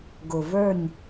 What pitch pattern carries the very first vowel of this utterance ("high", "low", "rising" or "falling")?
low